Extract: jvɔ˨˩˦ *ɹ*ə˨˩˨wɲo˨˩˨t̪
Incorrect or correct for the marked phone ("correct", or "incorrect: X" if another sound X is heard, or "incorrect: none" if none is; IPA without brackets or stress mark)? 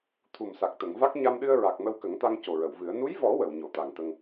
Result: incorrect: w